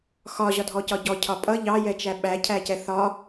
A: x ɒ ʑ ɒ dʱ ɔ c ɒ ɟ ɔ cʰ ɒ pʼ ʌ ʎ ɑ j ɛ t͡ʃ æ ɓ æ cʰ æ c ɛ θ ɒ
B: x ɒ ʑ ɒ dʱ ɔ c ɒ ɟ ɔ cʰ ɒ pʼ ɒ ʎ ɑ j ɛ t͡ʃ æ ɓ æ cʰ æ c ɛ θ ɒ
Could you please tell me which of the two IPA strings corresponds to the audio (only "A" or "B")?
A